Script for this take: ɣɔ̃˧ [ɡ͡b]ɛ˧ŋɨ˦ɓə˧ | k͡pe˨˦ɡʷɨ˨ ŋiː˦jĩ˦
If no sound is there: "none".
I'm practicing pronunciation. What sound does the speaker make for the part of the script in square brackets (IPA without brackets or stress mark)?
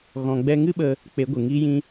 ɡ͡b